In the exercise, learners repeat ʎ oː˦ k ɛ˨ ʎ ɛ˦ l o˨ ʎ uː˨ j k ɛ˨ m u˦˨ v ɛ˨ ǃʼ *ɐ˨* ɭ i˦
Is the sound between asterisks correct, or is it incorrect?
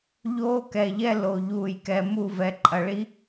correct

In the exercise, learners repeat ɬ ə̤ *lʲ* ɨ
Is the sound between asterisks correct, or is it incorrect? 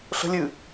correct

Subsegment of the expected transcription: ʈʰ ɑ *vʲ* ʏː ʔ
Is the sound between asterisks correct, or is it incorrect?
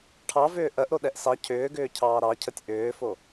incorrect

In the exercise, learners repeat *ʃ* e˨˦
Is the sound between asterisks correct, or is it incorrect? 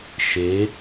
correct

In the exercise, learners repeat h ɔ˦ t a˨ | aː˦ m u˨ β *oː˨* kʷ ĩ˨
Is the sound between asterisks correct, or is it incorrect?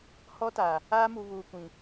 incorrect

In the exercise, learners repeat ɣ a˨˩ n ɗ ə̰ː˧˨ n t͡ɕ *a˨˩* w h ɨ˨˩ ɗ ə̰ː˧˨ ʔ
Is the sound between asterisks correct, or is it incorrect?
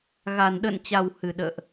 correct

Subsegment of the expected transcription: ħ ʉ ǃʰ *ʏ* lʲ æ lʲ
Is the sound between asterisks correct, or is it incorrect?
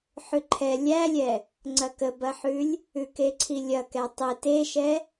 incorrect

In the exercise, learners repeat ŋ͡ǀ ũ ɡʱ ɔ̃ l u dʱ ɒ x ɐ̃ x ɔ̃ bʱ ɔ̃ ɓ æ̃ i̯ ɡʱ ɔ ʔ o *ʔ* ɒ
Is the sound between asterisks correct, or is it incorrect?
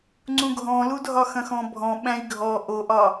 correct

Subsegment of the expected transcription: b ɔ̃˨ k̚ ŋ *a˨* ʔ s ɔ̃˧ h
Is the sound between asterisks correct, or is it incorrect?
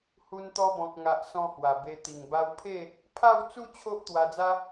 correct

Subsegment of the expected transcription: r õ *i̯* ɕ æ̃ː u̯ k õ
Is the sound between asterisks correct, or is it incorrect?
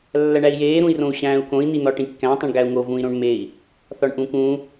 incorrect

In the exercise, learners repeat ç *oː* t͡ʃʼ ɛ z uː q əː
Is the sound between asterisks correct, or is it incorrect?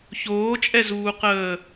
correct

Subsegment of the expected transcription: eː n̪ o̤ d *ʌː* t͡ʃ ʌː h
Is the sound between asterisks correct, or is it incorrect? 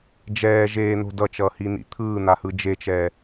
incorrect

